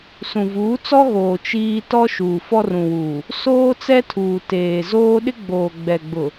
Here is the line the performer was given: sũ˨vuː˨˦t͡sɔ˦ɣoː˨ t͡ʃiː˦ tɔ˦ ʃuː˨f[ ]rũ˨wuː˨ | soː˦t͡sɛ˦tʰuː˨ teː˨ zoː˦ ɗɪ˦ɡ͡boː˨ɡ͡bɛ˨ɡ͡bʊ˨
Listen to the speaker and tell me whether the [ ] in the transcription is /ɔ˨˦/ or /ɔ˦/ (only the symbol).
ɔ˦